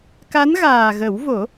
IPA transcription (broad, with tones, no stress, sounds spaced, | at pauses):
k a˧˥ n ɣ aː˨˩ ɣ ə˨˩˦ w v o˨˩˦